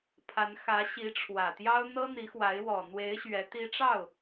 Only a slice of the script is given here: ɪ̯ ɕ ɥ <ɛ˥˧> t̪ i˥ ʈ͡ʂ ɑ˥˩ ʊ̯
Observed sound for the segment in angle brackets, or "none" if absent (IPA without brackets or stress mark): ɛ˧˥